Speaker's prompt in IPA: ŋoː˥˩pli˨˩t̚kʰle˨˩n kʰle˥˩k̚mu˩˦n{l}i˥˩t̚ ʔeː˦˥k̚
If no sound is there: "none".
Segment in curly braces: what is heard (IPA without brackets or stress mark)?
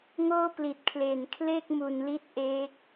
l